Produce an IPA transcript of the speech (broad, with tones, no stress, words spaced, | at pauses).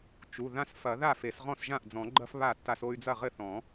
t͡ʃu˩˧˩ðã˦s fɐ˨˩˦ ða˥˩fe˨˩˦s ʁɔ̃˥˩sʒã˥˩ʔ d͡zɔ̃˨˩˦ɡ͡ǃɐ˦f βa˥˩tːa˦so˦y̯ d͡zɐ˥˩ʁɘ˥˩θɔ̃˨˩˦